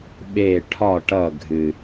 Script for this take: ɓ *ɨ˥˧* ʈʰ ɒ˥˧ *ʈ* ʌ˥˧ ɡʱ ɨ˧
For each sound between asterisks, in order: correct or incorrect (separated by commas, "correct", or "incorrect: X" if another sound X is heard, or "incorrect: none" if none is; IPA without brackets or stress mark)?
incorrect: e˥˧, correct